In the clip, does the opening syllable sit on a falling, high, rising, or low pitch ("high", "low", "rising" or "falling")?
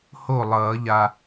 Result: falling